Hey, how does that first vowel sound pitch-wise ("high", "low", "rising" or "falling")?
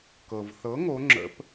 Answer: low